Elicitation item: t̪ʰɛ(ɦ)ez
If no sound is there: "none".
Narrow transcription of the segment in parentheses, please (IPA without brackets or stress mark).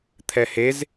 h